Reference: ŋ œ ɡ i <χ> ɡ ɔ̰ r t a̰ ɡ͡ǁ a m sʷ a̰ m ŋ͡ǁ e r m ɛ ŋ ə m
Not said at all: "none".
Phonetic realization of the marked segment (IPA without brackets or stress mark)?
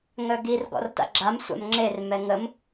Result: r